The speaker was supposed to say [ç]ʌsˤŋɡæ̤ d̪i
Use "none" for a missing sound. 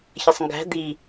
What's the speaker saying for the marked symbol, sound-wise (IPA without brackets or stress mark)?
ç